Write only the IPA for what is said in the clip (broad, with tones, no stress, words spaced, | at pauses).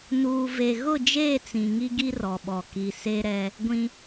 nuː˨ve˨ ɣʊ˦˨d͡ʒeː˦˨t͡sĩ˨ ŋi˦ɡi˦rɔ˨ɓɔ˨ ki˨ se˦ɾɛ˦ | ɡʷĩ˦